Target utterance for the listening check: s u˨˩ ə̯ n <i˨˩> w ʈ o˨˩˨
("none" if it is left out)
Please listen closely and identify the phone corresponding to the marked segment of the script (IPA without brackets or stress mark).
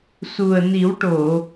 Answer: i˨˩˦